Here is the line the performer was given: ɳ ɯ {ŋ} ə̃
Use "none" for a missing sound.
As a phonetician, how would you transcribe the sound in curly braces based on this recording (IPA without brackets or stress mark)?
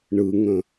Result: ŋ